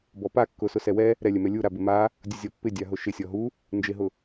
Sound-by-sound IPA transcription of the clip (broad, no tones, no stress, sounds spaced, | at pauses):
b ɔ p a kː ʊ s ʊ s ɛ w ɛ | ɾ ɛ lʲ ɛ m ɛ lʲ u ɾ a b ɪ m a | dʲ u zʲ ɔ pː ɪ dʲ a ɦ ʊ ʃ ɪ sʲ ɔ ɦ u | n d͡ʒ ɪ ɦ ʊ